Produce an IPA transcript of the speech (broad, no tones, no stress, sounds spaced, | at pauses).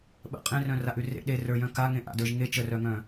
ɓ ə̰ qʼ ẽ r œ̃ r a ʔ ʉ r ḛ ɗ e r ə˞ j œ̃ k a ŋ ẽ ʔ a̰ d ə˞ ʒ ŋ e t͡ʃ ə r œ ŋ œ̃